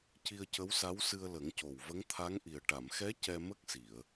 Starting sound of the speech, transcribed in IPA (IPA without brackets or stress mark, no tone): c